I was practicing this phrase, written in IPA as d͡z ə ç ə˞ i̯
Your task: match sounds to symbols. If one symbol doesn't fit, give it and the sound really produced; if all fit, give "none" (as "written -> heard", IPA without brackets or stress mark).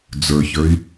ə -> ə˞